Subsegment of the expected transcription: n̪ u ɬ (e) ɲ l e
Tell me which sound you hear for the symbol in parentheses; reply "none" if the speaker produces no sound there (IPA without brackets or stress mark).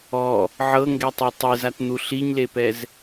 i